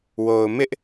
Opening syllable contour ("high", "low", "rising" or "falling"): low